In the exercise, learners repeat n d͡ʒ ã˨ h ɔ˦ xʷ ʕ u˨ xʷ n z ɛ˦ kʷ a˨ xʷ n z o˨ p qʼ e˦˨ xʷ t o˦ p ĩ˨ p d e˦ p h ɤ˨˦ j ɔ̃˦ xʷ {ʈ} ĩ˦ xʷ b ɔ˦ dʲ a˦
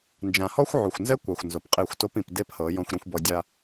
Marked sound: incorrect: ɾ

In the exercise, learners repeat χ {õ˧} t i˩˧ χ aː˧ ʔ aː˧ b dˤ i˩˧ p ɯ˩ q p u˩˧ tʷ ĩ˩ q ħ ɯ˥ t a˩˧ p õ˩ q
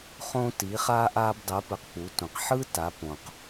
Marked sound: correct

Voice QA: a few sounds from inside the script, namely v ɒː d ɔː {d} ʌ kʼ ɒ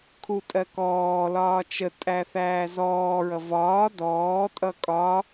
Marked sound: incorrect: tʼ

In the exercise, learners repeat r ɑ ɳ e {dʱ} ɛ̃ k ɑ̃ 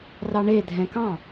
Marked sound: correct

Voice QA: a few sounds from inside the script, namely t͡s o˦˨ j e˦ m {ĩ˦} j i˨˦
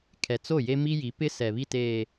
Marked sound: incorrect: i˦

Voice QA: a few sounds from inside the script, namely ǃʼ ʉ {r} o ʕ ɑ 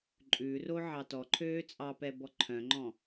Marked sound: correct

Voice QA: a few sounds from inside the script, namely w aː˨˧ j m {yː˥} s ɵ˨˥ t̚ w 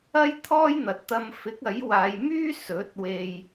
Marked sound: correct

